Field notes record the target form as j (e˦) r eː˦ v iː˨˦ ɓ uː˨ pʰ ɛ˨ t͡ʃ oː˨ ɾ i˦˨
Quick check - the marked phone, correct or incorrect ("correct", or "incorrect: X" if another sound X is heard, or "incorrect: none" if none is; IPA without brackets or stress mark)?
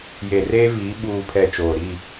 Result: incorrect: e˨